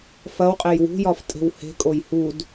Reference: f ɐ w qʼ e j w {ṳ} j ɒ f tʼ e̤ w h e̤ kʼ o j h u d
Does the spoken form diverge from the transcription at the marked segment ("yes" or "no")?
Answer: no